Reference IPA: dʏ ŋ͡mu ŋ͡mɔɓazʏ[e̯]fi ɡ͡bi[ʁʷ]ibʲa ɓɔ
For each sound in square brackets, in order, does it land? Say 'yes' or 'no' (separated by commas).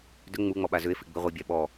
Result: yes, yes